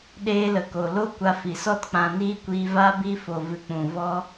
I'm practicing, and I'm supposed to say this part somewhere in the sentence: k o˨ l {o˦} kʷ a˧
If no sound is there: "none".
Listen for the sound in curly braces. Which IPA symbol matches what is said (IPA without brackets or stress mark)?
o˦